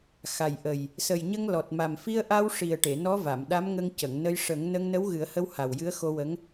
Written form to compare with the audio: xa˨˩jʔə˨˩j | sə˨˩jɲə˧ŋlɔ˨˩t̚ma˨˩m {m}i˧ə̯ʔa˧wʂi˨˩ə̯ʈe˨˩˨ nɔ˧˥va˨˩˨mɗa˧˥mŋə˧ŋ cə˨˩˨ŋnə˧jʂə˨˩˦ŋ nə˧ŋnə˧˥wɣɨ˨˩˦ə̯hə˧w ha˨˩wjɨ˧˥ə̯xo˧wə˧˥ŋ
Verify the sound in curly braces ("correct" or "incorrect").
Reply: incorrect